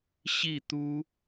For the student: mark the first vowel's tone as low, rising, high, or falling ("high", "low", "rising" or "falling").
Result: falling